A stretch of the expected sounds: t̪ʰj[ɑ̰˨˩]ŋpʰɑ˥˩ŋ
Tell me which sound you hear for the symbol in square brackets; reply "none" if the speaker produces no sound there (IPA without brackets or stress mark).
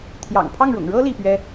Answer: ɑ̰˨˩